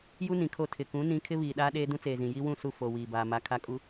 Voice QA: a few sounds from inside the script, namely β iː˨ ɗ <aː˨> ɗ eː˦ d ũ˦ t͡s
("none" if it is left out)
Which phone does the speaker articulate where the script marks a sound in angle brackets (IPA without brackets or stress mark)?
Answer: aː˦